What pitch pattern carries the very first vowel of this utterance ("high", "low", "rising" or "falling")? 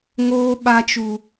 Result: high